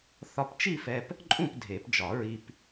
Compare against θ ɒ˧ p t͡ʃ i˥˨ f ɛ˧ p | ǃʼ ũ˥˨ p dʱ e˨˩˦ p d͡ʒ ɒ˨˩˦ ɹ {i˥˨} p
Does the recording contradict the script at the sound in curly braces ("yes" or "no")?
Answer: yes